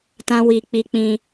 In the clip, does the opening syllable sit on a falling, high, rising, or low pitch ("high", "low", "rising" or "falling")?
high